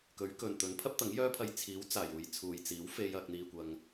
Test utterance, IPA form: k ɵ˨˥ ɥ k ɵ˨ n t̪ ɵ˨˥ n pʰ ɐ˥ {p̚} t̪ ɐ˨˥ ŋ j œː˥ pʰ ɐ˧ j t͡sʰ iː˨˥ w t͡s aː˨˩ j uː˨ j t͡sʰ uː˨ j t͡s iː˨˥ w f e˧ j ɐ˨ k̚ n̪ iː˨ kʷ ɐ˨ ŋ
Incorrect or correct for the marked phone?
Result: correct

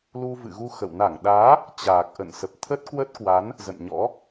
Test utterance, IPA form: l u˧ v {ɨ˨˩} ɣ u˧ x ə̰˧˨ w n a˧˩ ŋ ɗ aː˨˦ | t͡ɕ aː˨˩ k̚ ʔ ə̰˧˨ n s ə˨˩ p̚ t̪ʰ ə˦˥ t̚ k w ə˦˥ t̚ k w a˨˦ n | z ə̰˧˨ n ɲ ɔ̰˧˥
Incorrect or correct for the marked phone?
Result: incorrect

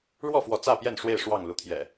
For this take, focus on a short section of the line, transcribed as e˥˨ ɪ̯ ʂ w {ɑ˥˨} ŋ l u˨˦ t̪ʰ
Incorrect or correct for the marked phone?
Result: correct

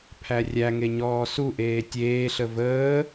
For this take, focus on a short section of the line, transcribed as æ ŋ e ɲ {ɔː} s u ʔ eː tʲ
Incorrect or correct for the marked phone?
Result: correct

